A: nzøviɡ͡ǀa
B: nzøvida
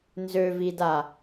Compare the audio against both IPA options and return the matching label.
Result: B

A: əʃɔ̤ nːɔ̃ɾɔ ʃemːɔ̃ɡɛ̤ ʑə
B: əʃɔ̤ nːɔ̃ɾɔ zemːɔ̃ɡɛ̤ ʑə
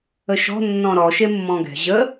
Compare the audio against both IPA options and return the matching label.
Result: A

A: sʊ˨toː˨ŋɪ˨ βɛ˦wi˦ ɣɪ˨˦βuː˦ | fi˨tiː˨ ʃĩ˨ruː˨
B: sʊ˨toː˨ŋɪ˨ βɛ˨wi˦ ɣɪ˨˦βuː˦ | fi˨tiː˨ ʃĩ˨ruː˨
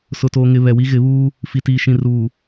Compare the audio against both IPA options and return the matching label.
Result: B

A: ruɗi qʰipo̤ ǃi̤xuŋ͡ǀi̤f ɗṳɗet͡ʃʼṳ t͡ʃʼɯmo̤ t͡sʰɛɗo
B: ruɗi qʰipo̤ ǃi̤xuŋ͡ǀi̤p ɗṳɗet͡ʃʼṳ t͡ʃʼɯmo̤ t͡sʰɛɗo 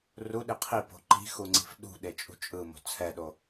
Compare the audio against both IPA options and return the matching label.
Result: A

